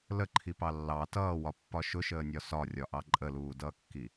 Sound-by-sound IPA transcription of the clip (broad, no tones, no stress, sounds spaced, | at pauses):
l ə ǃʰ i p ɑ lː ɑ t ʌː w ɒ pː ɒ ʃ ʊ ʃ əː nʲ ɒ s ɒ rʲ ɒ ʔ ɑ ǃʼ ə l uː d ʌː kː i